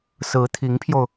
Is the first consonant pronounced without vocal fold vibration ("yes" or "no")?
yes